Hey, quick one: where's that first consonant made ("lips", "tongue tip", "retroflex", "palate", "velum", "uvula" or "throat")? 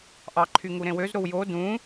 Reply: throat